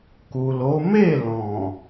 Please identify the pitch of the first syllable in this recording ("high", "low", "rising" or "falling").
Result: low